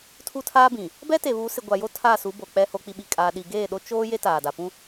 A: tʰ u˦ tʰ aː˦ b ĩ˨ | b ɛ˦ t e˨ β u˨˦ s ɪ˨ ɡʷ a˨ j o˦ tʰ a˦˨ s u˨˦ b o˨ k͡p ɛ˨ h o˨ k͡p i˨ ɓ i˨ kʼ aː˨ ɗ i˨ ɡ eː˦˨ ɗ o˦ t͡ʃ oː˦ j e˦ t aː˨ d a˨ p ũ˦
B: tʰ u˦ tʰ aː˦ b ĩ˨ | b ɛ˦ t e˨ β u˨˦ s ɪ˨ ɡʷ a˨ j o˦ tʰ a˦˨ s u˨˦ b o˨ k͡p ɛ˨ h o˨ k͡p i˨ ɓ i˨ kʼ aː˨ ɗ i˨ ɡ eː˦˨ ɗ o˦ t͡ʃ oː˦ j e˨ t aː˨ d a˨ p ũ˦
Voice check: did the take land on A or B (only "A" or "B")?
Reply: A